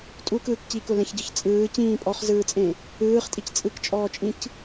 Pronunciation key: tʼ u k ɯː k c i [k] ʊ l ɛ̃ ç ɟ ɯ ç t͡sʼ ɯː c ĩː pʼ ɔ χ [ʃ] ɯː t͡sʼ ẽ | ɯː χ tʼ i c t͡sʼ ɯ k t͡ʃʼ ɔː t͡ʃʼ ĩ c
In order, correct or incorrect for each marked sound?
correct, incorrect: z

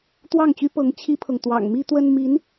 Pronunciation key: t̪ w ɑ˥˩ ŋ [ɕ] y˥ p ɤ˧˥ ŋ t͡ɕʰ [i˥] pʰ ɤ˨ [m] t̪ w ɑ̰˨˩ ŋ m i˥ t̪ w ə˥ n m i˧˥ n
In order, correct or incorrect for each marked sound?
incorrect: t͡ɕ, correct, incorrect: ŋ

